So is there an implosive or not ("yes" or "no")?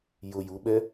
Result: yes